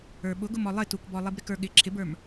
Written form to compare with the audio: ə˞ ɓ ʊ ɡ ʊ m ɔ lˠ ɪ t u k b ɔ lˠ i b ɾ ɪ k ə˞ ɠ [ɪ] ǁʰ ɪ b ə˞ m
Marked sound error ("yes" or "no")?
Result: no